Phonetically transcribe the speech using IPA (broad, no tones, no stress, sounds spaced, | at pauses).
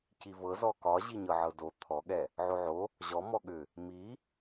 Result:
c i v ɤ z ɔ k ɒ ʑ i ɲ ɤ ʕ ɤ d o t̪ʰ ɔ ɠ ɛ | ʕ o ʕ o | ʑ ɔ m ɔ ɠ ʏ | m i